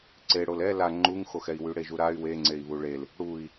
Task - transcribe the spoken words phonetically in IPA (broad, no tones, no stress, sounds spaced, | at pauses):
ǀ e ɽ o l ɛ l a ŋ͡ǃ u ŋ x o x ɛ i̯ w y ɽ e ʒ u ɾ a y̯ w e ŋ͡ǀ e i̯ β u ɭ e l | ɽ u i̯